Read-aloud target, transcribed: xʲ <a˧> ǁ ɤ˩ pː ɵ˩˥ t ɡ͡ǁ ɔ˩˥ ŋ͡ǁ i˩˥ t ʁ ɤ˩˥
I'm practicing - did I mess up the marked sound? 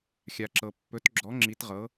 yes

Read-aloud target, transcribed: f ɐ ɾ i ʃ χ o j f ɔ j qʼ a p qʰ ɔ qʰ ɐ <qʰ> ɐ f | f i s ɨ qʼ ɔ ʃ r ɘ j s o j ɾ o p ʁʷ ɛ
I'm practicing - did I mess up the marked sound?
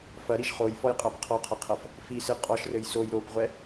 no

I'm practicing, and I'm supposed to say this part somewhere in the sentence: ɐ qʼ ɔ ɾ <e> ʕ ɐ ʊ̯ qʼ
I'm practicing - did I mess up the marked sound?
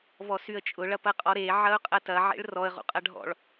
no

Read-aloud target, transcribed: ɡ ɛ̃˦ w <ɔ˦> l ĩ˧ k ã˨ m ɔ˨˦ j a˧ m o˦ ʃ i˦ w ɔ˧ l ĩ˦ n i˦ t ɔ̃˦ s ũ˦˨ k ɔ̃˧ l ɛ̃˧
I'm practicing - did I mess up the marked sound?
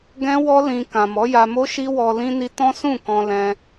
no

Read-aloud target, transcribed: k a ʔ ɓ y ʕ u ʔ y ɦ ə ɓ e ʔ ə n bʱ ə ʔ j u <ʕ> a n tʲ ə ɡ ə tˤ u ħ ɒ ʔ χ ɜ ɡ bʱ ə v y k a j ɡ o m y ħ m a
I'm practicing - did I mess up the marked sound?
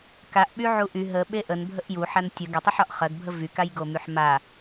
yes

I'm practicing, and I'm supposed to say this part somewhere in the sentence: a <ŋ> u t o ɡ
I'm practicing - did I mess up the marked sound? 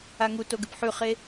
no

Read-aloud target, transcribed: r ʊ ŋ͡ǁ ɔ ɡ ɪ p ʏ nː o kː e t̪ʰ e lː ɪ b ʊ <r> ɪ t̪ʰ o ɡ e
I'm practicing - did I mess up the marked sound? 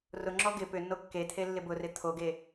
no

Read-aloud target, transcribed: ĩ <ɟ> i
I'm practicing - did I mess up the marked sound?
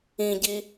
no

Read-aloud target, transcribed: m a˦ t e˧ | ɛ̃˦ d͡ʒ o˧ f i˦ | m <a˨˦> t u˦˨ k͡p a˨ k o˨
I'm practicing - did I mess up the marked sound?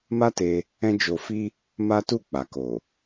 yes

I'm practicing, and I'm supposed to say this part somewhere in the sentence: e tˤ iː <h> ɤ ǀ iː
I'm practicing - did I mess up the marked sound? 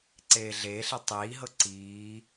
yes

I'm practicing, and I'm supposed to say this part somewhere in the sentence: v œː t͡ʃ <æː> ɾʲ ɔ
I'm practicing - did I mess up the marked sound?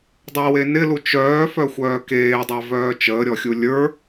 yes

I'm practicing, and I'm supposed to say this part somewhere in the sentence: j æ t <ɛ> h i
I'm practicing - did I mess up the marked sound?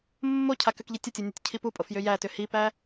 yes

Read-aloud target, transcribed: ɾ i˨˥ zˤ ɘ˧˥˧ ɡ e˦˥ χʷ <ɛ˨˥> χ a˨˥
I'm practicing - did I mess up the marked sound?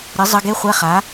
yes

